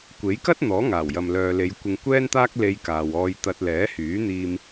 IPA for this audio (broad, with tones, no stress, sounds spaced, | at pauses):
kʷ e˨˥ j k ɐ˥ t̚ n̪ ɔː˨˥ ŋ aː˨˩ w j ɐ˨ m l œː˨ l e˨˧ j kʷ ɪ˧ ŋ kʷ ɛː˥ n t̪ aː˥ k̚ l e˧ j k aː˨ w ɔː˧ j t̪ ɐ˧ t̚ l ɛː˨˥ h yː˨˥ n̪ iː˧ m